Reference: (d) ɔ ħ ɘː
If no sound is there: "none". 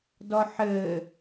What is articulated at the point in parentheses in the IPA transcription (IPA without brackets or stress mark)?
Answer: d